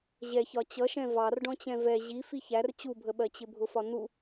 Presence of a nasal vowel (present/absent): present